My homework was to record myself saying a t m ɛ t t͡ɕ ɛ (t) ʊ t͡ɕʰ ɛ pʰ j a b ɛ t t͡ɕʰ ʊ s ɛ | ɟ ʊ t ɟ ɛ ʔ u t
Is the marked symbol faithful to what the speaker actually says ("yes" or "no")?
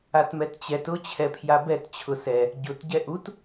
yes